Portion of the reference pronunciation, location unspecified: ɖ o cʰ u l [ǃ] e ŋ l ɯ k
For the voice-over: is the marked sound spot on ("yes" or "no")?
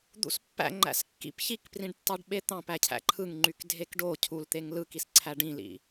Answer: no